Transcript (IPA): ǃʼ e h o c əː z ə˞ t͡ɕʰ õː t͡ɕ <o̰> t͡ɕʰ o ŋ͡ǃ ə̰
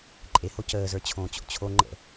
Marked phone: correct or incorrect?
correct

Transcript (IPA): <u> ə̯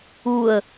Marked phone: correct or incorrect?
correct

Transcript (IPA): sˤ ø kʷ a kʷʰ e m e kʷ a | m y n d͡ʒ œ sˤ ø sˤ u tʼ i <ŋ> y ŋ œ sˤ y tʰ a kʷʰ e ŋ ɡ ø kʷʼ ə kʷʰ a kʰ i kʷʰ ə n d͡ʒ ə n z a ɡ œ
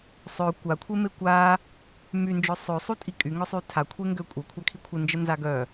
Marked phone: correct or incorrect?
incorrect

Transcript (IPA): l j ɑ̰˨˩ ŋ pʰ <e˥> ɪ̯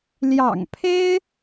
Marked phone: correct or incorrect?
correct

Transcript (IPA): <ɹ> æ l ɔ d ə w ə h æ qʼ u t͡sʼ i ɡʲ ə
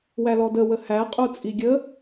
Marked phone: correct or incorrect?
incorrect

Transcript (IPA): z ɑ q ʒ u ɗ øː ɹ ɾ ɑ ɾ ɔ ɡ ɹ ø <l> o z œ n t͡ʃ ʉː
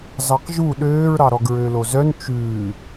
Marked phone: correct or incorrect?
correct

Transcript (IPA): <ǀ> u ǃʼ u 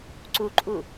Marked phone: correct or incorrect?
correct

